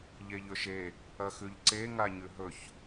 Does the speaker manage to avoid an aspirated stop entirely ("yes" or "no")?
yes